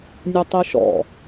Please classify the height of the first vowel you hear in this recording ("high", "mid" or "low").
mid